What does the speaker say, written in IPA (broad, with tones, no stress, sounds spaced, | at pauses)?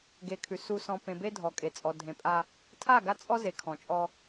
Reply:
ɡ e˨ kʰ ʉ˨ s u˨ s ɔ̃˨ p ẽ˨ b e˦ dʱ ɔ˨ kʼ e˨ t͡sʼ ɔ˨ dʱ ẽ˨ pʼ a˦ | tʰ a˦˨ ɡ a˦ t͡sʼ ɔ˦ z e˨ kʰ ɔ̃˨ t͡ʃʼ ɔ˦